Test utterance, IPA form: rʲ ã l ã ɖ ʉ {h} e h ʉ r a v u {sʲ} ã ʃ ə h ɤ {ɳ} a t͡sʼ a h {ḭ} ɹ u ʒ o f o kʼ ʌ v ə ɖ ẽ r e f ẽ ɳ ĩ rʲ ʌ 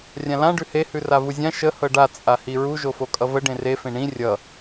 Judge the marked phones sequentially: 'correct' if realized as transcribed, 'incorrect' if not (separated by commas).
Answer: correct, incorrect, incorrect, incorrect